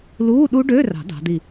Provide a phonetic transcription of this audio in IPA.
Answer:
luː˧˥˧ɗu˦˥ɖø˧˥˧rɑ̤˨˩˦ dɑ̤˨˥di˥˨

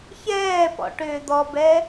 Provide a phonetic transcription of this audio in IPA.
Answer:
çɛːpɔ̰ ʈʏːd̪ɔbɛ

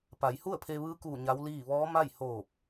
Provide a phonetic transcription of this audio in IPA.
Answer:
pa˩˧jhu˥˨ə̯pʰe˧ ʋɯː˧˥kuː˧˩ ɲa˧˥wliː˥˨ ʋɔː˧˥ma˥˨j hoː˧˩p̚

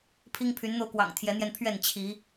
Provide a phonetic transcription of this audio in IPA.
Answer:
pʰi˦ŋpʰy˨˦nn̪o˧ʊ̯kwɑ̰˨˩ŋ t̪ʰjɛ˨˦n̪jɛ˧n pʰɥɛ˥˨n t͡ɕʰi˨˦

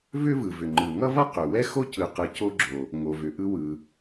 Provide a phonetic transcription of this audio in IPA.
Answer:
vʏ˥vɯ˩ vʏ˩ŋ͡ǃɯ˩ŋʌ˥vʌ˥ qʏ˩wɛ˥ xo˥cɯ˩qɯ˩ co˥ɡ͡ǁo˩ | ŋo˩vʏ˩ ʔɯ˥ wɯ˩

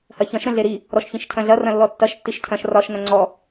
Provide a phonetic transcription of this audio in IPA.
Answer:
hɐçɐ̃ʃ ɾə̃ɮeɾi | ɾɔʃçĩʃcʰɐ̃ɮɐ rɐ̃lːɔtːɐʃ tːiʃcʰɐ̃ʃ rɒʃ ŋɐ̃ŋ͡ǀɔ

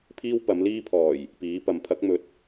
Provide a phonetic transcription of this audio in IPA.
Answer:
pʰiː˥wpɐ˨˥mliː˥pʰɔː˨˩j | piː˨˥pɐ˨˧m pʰɐ˨˥k̚mɵ˨t̚

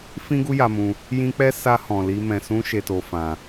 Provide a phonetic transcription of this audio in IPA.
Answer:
fĩ˧ɡu˧ ja˧mũ˧ | jĩ˧k͡pɛ˦ sa˦ hɔ̃˧li˦ mɛ̃˧sũ˦ ʃe˧to˧ fã˧

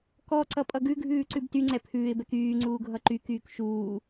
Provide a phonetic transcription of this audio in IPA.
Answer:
kɔǀʌ pʼʌɡʉɡʱʉː ǀʉbtyŋ͡ǀɛ pʰʉːɪ̯bɛk yːŋ͡ǀuː ɡʱʌǃykyːk ʃuː

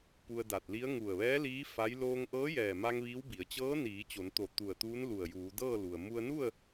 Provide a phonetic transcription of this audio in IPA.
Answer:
pu˧ə̯da˧˩t̚li˧˥ə̯ ŋu˧˩ə̯ʋɛː˧˥ liː˧˥ fa˧˥j loː˧ŋʔɤː˧˥jɛː˧˩ma˧ŋ ʋiː˧˥wbi˩˧ə̯ t͡ɕɤː˧˥ niː˩˧t͡ɕo˩˧nt̪o˧˩ t̪u˧˩ə̯t̪uː˧˥nlu˧˩ə̯juː˩˧ dɤː˥˨lu˩ə̯ mu˧ə̯nu˥˨ə̯

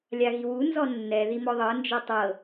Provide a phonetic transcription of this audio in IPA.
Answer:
lʲaɣiwu nzɔnːɛ ðimɔðˤɤ nd͡ʒɛtˤɤ

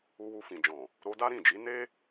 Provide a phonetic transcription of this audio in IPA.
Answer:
u˧wu˧fĩ˨d͡ʒɔ̃˨ | ɾo˧da˦ɾĩ˦˨d͡ʒi˨˦ ne˦

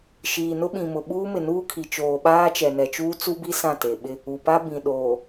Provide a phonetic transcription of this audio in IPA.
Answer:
ʃiː˨nʊ˦ɓĩ˨mʊ˨ ɓuː˦mɪ˨nuː˦kʰi˨ t͡ʃoː˨ ɓaː˦t͡ʃɛ˨nɛ˨t͡ʃuː˦ t͡su˦bi˦ sã˦˨te˨ɓɪ˦ | u˨pa˦ bĩ˨ ɗoː˨

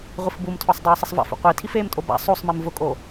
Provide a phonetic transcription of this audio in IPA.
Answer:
ʁʷifbumtʰɔsˤ dˤoːsˤɪsˤva̰f ṵqʷi tʰifeːmtʼoba̰ sˤosˤmim vʊkʼo

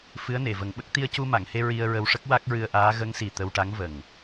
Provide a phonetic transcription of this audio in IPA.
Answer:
fɨ˧˥ə̯ne˨˩˨və˨˩˦ŋɓə˦˥k̚ t̪i˧ə̯cu˧ma˨˩˨ŋhe˧ ɹi˧ə̯ɹə˧wʂə˦˥k̚ wa˦˥k̚ɹɨ˧ə̯ʔaː˧˥ ɣə˧˥ŋsi˨˩ t̪ə˧wʈa˧˥ŋvə˨˩ŋ

